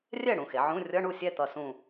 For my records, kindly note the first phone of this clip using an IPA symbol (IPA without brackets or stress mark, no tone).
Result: rʲ